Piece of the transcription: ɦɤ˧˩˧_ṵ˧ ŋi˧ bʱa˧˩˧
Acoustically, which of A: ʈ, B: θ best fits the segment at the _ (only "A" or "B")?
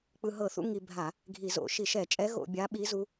B